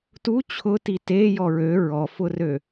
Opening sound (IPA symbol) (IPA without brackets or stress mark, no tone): t